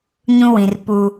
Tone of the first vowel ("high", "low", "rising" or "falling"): high